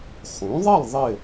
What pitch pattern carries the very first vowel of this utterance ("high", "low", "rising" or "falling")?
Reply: rising